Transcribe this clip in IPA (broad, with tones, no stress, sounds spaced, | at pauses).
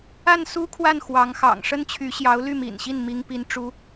a˥˩ n s u˥ kʰ w a˥˩ n x w ɑ˧˥ ŋ x ɑ̰˨˩ ŋ ʂ ə˥ n t͡ɕʰ y˧˥ ɕ j ɑ˧˥ ʊ̯ l y˥˩ m ḭ˨˩ n ɕ i˥˩ n m i˥ ŋ p i˥ n ʈ͡ʂ u˥